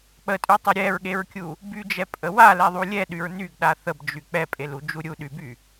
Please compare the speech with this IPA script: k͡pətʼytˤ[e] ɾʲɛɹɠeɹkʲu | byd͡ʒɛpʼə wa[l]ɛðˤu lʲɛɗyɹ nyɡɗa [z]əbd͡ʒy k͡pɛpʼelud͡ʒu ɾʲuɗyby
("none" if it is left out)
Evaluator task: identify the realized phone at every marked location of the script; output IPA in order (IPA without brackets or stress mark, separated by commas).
e, l, θ